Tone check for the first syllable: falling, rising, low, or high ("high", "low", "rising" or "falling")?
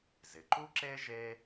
low